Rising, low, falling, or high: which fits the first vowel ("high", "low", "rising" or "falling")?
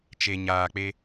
low